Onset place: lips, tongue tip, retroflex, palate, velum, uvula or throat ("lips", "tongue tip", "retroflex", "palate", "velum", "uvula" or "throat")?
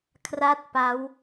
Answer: velum